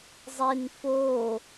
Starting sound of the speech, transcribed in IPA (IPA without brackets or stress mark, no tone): zˤ